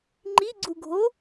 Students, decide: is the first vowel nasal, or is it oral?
oral